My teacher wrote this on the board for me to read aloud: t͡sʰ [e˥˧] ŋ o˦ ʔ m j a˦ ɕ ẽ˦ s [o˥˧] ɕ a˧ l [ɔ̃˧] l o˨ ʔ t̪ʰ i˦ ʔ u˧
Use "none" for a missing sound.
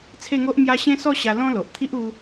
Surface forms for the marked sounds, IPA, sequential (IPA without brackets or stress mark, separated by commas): e˥˧, ɔ˥˧, ɔ̃˦